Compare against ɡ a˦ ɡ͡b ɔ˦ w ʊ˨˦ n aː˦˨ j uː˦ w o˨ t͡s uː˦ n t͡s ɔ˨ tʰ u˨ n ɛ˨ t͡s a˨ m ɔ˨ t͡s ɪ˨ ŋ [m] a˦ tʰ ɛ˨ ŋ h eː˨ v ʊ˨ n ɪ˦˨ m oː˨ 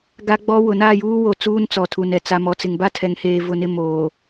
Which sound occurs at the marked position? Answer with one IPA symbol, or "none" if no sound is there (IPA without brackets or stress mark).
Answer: b